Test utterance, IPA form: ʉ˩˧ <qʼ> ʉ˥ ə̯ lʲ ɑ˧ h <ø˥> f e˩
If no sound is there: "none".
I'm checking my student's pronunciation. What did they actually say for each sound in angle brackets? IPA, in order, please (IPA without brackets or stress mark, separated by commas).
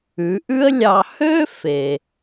ʔ, ø˥